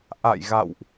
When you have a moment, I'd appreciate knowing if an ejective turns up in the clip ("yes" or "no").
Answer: no